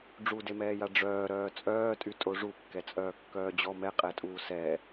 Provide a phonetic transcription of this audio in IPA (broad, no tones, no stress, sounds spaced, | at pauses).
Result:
ɖ͡ʐ u d e m ɛː j a ɖ͡ʐ œː ɾ œː t͡sʼ œː tʼ y tʼ o ʐ u kː ɛ t͡sʼ œː kː œː d͡ʑ ɔ m ɛ qʼ ɛ tʼ uː s ɛ